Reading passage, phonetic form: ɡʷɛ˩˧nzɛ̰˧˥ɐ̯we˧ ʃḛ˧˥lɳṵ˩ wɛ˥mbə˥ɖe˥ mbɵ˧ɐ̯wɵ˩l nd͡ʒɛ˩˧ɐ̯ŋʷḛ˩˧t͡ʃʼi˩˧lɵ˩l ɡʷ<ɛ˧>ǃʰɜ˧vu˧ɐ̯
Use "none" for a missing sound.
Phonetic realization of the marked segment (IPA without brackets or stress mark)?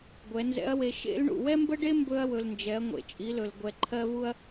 ɛ˩